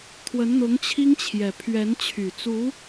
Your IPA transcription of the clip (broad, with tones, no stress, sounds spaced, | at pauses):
t̪ʰ w ə˧˥ n n̪ ʊ˧˥ ŋ t͡ɕʰ i˥ ŋ t͡ɕʰ j ɛ˨˩ pʰ ɥ ɛ˧˥ n t͡ɕʰ y˨˩ t͡s u˧˥